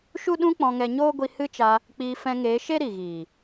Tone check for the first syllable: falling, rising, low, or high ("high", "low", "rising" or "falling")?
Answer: high